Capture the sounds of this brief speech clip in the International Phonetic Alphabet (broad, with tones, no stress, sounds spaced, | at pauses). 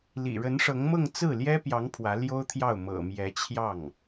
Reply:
l ḭ˨˩ ɻ ə˧˥ n ʂ ɤ˧˥ ŋ m ɤ˥˧ ŋ t͡s ɹ̩˥˩ l j ɛ˥ p j ɑ˧˥ ŋ pʰ w ä˧˥ l j o˥ ʊ̯ t̪ʰ j ɑ˥˩ ʊ̯ m ɤ̰˨˩ m j ɛ˧˥ t͡ɕʰ j ɑ˥˩ ŋ